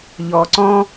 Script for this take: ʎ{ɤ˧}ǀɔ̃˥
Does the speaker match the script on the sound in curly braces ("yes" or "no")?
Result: no